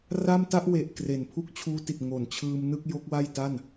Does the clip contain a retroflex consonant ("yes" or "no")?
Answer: no